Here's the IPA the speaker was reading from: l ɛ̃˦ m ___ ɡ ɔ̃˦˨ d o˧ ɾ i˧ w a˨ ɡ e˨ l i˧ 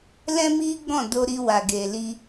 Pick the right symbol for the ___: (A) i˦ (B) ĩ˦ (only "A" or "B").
A